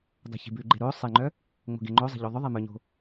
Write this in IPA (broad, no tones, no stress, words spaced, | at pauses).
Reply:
dˤo̤çi̤bʉɡ͡ǃe ɾo sˤeŋ͡ǃœ | ŋ͡mo̤ɡeŋ͡ǃozˤi̤ ʎoðˤɵðˤe mœɲo̤